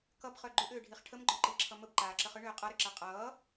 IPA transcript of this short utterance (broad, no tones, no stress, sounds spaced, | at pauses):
k ʌ b χ œ ɡ͡ǃ ʏ ʔ ʏː ɖʱ i χ ʈʰ ə m ɡ͡ǃ œ ǃ i ǁʰ ʌ m ə b ǃ aː ǁ ə χ ʏ ɳ ʏː qʼ ʌ ɾ ʏ ǁ a qʼ ʌː